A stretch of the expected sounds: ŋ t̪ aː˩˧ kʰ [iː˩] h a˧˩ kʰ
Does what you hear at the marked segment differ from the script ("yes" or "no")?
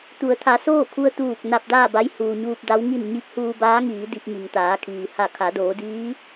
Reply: no